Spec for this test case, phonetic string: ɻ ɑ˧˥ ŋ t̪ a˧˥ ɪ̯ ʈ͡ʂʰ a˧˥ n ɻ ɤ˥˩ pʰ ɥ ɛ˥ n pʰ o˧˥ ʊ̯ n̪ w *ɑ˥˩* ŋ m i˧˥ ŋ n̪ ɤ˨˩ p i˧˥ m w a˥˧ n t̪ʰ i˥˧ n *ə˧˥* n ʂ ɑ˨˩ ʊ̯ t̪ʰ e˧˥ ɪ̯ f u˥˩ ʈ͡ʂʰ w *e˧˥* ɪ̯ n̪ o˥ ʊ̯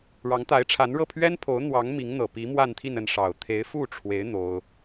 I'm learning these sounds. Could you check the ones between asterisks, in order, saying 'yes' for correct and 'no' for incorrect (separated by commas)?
no, no, yes